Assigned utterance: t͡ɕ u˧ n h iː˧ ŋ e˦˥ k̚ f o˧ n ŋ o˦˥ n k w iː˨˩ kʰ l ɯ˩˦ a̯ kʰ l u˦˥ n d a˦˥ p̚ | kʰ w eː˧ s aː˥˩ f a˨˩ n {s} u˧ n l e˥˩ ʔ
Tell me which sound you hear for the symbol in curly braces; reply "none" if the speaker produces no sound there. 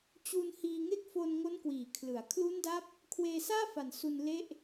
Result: s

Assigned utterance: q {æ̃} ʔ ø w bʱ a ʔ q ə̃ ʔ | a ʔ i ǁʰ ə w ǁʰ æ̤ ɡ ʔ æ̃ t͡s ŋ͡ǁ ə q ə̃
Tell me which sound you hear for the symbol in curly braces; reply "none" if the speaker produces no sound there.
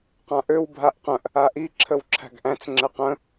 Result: ã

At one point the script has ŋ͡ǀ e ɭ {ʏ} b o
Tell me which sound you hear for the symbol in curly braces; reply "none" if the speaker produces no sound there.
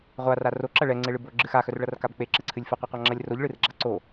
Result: ɨ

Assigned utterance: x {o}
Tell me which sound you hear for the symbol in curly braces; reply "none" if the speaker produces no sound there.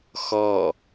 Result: ɔ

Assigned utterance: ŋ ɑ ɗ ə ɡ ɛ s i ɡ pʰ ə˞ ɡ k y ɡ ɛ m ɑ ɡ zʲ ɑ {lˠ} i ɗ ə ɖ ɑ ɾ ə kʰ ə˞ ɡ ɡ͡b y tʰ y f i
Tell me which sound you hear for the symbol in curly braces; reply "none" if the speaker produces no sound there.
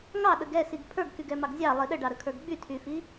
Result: lˠ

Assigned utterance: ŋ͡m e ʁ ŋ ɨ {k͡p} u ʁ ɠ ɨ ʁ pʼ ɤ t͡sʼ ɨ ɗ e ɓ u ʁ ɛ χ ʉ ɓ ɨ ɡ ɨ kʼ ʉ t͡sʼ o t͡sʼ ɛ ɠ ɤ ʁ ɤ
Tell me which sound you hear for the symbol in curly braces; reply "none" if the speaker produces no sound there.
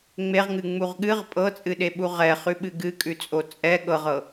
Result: ŋ͡m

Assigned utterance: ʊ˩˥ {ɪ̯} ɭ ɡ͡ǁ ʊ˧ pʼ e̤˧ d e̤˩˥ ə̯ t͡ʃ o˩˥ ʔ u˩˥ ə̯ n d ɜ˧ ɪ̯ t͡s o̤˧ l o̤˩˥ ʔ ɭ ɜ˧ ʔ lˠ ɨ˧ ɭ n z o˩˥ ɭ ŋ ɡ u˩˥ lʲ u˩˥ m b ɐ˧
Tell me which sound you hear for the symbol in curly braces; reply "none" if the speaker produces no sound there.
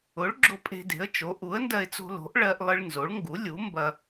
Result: none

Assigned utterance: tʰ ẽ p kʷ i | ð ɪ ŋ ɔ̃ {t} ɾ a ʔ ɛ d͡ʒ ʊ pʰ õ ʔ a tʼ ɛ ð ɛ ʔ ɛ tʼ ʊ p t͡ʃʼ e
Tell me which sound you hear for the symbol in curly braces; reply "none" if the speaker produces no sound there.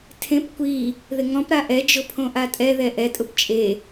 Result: p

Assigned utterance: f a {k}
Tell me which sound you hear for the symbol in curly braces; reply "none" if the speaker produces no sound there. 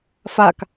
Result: k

